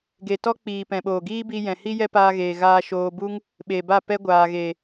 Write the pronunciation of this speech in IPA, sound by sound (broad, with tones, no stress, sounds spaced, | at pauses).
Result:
ɡ e˨ t ɔ˦ k͡p iː˨ p ɛ̃˨ ɓ oː˨ ɡ iː˦ b i˧ j ɛ̃˨ h i˦ j ɛ˦ p aː˧ ɣ eː˨ ɣ aː˧ ʃ oː˧ b u˦ ŋ | ɓ e˨ b a˦˨ p ɛ˦ ɡʷ aː˨ ɣ e˨